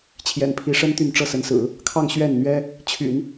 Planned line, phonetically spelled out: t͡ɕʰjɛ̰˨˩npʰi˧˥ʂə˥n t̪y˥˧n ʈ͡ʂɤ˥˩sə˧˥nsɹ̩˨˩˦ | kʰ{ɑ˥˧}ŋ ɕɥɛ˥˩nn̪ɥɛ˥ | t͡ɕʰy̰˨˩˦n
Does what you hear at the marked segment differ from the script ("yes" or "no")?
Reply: no